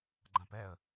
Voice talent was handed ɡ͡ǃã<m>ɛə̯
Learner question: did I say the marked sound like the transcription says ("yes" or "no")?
no